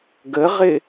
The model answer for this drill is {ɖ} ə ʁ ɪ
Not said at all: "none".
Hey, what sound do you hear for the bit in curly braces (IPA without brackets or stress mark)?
ɡ